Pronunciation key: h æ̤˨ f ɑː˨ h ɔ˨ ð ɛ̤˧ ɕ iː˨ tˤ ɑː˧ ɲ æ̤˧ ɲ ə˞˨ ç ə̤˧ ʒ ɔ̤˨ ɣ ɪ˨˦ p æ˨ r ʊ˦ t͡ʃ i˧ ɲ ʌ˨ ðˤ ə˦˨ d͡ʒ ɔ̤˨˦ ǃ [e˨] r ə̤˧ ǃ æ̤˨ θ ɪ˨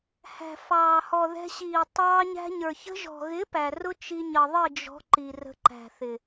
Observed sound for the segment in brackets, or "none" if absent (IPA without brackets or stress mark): i˨